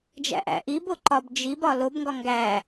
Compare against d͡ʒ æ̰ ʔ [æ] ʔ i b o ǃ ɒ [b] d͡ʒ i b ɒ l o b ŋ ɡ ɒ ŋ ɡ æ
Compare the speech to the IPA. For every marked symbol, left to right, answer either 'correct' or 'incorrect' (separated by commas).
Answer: incorrect, correct